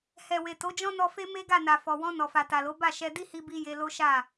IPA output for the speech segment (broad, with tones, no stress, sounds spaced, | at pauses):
h ɛ˨ w e˨ t o˨˦ d͡ʒ ɔ̃˦ n ɔ˧ f e˦ m e˦ ɡ a˦˨ n a˨ f ɔ˨ w ɔ̃˧ n ɔ˨ f a˨ t a˨ l o˨˦ b a˦˨ ʃ ɛ˧ d i˦ h i˧ b i˧ j e˧ l o˦ ʃ a˦˨